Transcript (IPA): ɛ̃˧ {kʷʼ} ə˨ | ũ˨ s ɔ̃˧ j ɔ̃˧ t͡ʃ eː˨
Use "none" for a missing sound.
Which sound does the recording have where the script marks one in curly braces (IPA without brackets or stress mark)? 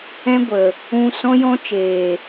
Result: ɡʷ